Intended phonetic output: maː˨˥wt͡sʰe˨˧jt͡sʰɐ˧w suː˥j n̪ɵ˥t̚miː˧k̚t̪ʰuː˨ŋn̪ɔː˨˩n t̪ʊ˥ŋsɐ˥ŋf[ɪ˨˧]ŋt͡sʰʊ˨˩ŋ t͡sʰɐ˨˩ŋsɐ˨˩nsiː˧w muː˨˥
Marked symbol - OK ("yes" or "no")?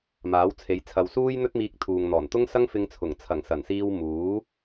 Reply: no